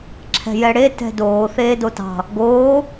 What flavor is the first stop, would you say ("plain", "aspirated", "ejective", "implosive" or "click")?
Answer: click